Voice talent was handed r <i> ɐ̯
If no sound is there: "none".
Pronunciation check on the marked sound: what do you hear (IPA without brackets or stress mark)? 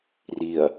i